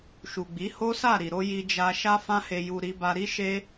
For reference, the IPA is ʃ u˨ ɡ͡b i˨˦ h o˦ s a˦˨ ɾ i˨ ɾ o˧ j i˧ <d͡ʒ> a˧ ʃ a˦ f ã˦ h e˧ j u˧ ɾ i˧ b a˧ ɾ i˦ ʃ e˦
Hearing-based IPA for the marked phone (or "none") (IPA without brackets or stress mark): d͡ʒ